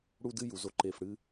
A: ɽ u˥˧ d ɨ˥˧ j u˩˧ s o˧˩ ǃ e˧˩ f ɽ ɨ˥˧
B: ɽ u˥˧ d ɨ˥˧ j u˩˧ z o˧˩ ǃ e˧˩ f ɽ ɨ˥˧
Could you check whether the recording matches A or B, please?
B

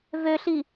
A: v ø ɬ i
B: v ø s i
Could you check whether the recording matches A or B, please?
A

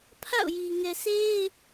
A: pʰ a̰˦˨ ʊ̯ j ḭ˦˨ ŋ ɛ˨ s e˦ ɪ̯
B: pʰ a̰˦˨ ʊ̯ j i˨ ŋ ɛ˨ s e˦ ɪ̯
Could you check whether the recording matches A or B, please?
B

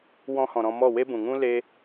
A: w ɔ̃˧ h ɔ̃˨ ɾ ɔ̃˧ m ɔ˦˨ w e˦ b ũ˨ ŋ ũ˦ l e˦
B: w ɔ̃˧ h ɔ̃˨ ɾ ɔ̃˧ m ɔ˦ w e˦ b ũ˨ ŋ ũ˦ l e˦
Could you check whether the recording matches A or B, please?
A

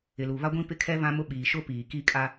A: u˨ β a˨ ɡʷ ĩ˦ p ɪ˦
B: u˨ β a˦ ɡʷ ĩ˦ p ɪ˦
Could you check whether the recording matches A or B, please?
B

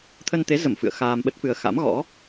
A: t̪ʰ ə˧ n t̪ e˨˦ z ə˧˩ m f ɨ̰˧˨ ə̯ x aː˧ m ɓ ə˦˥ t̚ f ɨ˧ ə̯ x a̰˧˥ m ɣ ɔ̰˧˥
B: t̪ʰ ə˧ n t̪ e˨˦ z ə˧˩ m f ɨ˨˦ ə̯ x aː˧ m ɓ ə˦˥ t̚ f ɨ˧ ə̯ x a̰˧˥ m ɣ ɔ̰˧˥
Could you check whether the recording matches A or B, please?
A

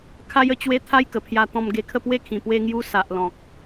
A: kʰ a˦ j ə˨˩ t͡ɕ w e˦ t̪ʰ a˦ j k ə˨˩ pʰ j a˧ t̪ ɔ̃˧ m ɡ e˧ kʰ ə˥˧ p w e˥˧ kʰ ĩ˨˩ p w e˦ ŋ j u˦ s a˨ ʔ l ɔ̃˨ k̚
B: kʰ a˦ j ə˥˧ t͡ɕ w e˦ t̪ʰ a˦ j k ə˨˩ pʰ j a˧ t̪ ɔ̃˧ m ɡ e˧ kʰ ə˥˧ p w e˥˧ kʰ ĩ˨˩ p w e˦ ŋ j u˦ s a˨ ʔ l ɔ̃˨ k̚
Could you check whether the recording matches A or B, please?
B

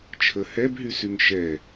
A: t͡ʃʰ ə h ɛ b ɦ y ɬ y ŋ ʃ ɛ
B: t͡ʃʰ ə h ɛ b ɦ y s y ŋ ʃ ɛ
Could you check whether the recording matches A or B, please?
B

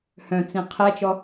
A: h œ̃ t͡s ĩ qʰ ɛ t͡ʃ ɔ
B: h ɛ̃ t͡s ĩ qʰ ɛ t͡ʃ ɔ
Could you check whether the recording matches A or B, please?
A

